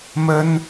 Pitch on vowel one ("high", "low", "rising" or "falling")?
high